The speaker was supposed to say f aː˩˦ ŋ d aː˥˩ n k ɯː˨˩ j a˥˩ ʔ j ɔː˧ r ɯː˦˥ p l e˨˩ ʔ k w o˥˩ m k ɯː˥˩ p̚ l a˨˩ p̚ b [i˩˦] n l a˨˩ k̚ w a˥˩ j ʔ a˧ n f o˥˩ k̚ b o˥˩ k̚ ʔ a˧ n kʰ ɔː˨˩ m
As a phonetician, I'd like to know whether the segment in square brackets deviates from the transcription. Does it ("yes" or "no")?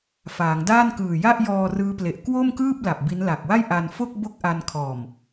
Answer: yes